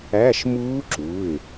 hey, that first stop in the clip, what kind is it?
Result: click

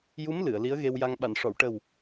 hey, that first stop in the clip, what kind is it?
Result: implosive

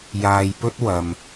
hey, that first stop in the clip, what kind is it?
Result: plain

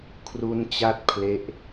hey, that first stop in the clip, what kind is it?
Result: aspirated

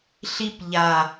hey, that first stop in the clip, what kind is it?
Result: plain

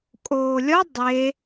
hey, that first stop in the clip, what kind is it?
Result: ejective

